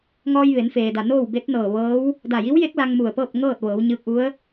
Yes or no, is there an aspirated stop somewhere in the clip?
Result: no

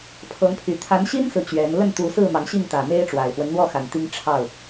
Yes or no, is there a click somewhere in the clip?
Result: no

